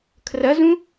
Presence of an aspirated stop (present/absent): present